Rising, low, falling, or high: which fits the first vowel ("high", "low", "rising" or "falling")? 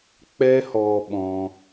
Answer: high